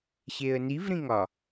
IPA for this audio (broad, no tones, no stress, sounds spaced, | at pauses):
ɕ e ə̯ n i v ɾ ĩ ŋ ɒ